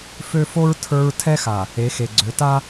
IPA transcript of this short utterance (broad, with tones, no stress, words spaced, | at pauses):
fø˦ fo˦ɹ tʰə˞˦ɹ tʰɛ˦xa˨ | e˨˦xe˨ɡ͡ǀø˨˦ ta˦